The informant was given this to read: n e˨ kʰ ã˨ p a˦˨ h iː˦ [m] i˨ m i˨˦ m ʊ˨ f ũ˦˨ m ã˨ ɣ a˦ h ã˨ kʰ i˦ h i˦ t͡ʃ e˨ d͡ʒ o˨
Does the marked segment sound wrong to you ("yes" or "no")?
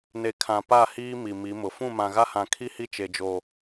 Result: no